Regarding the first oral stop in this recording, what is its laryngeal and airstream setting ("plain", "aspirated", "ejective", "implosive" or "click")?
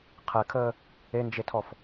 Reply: aspirated